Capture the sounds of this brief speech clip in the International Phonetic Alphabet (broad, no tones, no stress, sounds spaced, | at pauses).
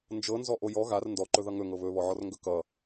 n d͡ʒ ɤ n z ɔ ʔ o j ɔ ɣ a r n d ɔ ǃ ɵ ð ʌ ŋ ɵ ŋ ɤ β ɵ β ɔ ʕ ɔ r ŋ ɡ ɵ k ʌ